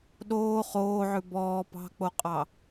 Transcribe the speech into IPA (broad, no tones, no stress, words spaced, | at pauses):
ɗoː χoːʕʉ bɔː pɑ̤k͡poqʼɑ